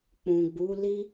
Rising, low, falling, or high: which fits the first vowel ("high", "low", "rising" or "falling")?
low